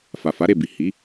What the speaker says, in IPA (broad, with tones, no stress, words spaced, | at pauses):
fa˨fa˨˦ɾe˦˨ bi˨hi˨˦